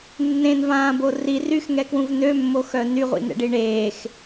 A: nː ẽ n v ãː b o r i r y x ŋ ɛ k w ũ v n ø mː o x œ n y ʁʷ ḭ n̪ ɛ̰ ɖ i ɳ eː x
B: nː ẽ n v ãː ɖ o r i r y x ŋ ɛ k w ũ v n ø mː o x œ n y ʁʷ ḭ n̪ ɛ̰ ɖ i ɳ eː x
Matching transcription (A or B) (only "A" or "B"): A